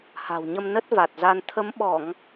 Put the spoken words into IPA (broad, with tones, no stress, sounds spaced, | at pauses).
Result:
h a̤˨˩ w ɲ ə˧ m n ə˦˥ t̚ v a˨˩ t̚ z a˧ n t̪ʰ ə˨˦ m ɓ ɔ˧˩˨ ŋ